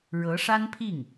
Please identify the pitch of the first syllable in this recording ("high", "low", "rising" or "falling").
rising